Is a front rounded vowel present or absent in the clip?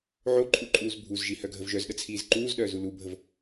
present